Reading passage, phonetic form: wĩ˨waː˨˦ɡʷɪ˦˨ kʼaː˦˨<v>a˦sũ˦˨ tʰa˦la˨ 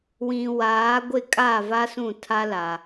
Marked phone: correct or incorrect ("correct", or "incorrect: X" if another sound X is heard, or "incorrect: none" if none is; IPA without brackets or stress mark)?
correct